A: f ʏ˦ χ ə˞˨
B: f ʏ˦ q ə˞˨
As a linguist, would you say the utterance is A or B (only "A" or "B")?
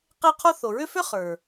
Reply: A